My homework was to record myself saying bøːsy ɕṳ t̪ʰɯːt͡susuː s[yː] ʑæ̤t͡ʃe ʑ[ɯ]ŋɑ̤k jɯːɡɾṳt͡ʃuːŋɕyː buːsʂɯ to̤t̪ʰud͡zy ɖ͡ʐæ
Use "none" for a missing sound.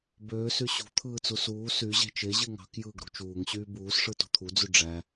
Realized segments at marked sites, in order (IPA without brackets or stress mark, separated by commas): y, ɯ